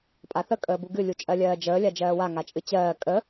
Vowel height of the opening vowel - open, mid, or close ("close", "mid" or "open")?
open